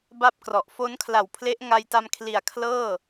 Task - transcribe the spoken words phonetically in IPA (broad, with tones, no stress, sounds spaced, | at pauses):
b a˥˩ p̚ k r ɔ˨˩ ʔ f o˦˥ n kʰ l a˨˩ w pʰ l e˦˥ ʔ ŋ a˧ j t a˧ m kʰ l i˨˩ a̯ kʰ l ɤː˥˩